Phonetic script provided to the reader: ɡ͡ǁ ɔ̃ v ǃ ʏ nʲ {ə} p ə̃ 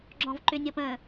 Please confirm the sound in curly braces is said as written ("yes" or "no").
yes